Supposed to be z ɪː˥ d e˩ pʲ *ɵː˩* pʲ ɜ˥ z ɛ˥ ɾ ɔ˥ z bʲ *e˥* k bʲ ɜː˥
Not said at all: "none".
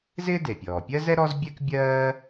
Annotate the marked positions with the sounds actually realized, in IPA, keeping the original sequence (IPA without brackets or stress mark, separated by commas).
ɔː˩, ɛ˥